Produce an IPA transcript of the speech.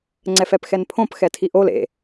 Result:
ŋ͡ǀ ɛ f ɛ p x ɛ n pʰ õ p x ɛ tʰ i ʔ o l ḛ

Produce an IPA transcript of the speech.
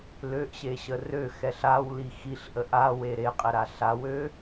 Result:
l ø ʔ ɕ e ɕ ə r ø x ɛ ɬ a w l i x i ɬ ʔ ə ʔ a w e ɾ e qʼ ɛ ɾ a ɬ a w ø

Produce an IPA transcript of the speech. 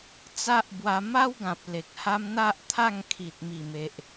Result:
t͡s a˦ ʔ b w a˧ m a˦ w ɡ ã˨ p̚ l e˨ k̚ h a˦ m n̪ a˦ ʔ t̪ʰ a˥˧ ŋ kʰ i˨ t̚ m i˨˩ m e˨ ʔ

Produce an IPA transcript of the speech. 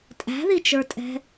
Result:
tʼ æ̤ ð i t͡ʃ ə˞ tʼ ɛ̤

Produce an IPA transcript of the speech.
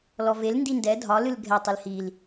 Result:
l ɔ v e l n d i n d ɛ dʱ ɒ l ɨ l ɡʱ ɛ tˤ i l h i l

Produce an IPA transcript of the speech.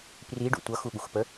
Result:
p r i ɖ ṵ tʷ ʌ x u ɠ u x p ə

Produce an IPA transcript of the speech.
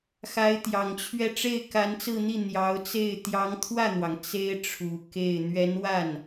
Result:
x a˧˥ ɪ̯ t̪ j ɑ˨˩ ŋ t͡ɕʰ ɥ ɛ˥˧ ʈ͡ʂ e˥˩ ɪ̯ k a˧˥ n t͡s ɹ̩˥˧ n̪ i˥˩ n̪ j ɑ˧˥ ʊ̯ t͡s e˥˩ ɪ̯ t̪ j ɑ˧˥ ŋ t̪ʰ w ä˥˩ n̪ w ɑ˩ ŋ t͡s e˥ ɪ̯ ʈ͡ʂʰ u˨˩ k e˥˩ ɪ̯ n̪ ɥ ɛ˧˥ n w a˥˩ n

